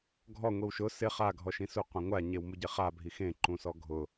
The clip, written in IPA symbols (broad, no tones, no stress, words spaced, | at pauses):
ɡʱɔ ŋʷiwʃʊ sɪ χa ɡʱɔʃĩsu qʷẽŋʷa ɲewmuɟeχa bʱixẽ ǃũsɔɡʱʊ